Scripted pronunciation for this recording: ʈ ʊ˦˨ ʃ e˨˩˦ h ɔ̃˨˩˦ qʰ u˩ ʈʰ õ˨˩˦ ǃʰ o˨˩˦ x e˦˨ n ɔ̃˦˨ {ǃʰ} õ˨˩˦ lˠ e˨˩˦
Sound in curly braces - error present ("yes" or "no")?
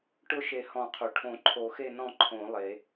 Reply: no